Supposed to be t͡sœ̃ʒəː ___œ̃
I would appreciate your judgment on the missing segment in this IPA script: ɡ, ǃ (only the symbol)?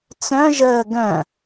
ɡ